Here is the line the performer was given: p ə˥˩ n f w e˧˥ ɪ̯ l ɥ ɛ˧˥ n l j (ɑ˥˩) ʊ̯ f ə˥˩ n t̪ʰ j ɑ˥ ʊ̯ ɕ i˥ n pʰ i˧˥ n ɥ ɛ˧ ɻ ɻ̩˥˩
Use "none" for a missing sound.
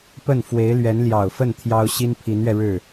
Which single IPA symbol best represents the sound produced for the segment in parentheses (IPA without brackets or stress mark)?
ɑ˨˩